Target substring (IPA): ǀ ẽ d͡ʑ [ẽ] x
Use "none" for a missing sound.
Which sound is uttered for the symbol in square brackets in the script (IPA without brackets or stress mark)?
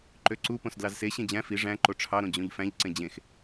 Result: ẽ